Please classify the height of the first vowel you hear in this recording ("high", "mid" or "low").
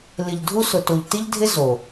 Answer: high